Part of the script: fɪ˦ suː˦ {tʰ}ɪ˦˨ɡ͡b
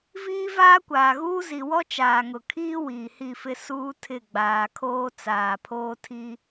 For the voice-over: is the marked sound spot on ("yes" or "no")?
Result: yes